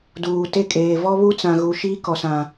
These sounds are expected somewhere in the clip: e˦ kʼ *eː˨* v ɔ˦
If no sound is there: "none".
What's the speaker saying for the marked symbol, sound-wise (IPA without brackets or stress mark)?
eː˨